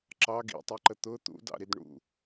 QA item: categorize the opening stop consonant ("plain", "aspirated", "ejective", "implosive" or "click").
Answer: click